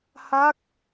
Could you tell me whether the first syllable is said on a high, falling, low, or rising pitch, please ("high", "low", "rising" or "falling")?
falling